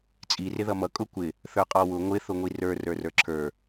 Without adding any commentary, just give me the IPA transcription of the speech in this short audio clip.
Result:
t͡sʼ i r ɪ ð ʌ m ʌ kʼ ʊ kʷ ɪ | θ ə˞ qʼ ɔ w ʊ ŋʷ ɪ θ ʊ ŋʷ i r ə˞ r ə˞ r ə˞ ǁʰ ə˞

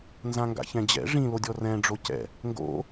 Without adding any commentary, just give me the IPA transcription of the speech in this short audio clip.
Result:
n z ã ŋ ɡ a̰ ç ɛ̃ d͡ʑ ɛ̰ ʐ ĩ l o dʲ ɔ r ɛ̃ ɖ͡ʐ o c ɛ̰ | ŋ ɡ o̰

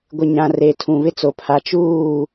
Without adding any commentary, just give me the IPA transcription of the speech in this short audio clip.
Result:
ɡʷ ɪ˨ ɲ ã˨ r e˨ tʰ ũ˨ β ɪ˦ t͡s o˨ pʰ a˨ t͡ʃ uː˦˨

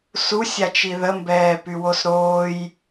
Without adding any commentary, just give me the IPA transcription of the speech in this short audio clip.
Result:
s u sʲ a t͡ʃ i ð ə m b ɛː p y w o s ɾ oː j

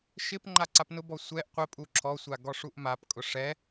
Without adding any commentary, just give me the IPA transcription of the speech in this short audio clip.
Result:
ʃ ɪ p ŋ͡ǃ a ǀ a p n ʊ b ɔ sʷ ɛ ʔ qʷ ɪ pʼ u ǁʰ ɔ sʷ a ɡ ɔ ʂ u ʔ m a p kʼ ʊ ʂ ɛ

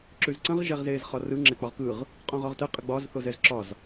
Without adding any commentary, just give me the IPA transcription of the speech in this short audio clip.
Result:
ǁ ʉ z ǀ ə̃ ʁ ʒ ɛ ʁ z eː z χ ɒ r ɯ ŋ͡ǁ e k͡p ɒ ʁ k ɯ ʁ | qʼ õ ʁ ɒ ʁ t ə qʼ ə ɡ͡b ɒ z θ o z ɛ z ǁ ɒ z

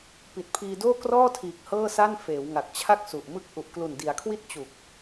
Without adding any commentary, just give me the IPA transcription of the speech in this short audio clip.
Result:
p i˨˩ t̚ pʰ iː˧ d oː˥˩ k r ɔː˥˩ tʰ iː˨˩ k̚ h ɤː˥˩ s a˥˩ n f eː˩˦ w ŋ a˨˩ k̚ t͡ɕʰ a˥˩ k̚ s u˨˩ ʔ m ɯ˥˩ k̚ ʔ u˨˩ ʔ k l u˨˩ n d i˩˦ a̯ kʰ w i˥˩ t̚ t͡ɕ u˨˩ k̚

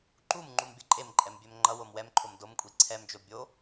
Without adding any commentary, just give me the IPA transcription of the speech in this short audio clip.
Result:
ǃ u m ŋ͡ǃ u m bʲ ʌ ǃʼ e m ǃʼ ɛ m bʲ ɛ m ŋ͡ǃ ʌ w o m w ɛ m ǃʰ o m d o m kʷʼ i ǀʰ ɛ m d͡ʒ o bʲ o

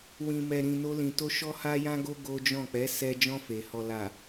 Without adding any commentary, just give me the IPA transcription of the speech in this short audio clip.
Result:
w ĩ˨ m ɛ˨ ɾ ĩ˨ n o˧ l ĩ˨ t o˧ ʃ ɔ˦ h a˦ j ã˦ ɡ o˦ ɡ o˦ d͡ʒ ɔ̃˦˨ k͡p ɛ˨˦ s ɛ˧ d͡ʒ ɔ̃˧ f e˨ h ɔ˨ l a˨

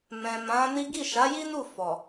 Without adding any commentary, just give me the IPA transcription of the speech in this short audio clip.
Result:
m ɛ̃˨ m ã˨˦ n i˦ ɡ i˦˨ ʃ a˨˦ j i˦ n u˦˨ f ɔ˨

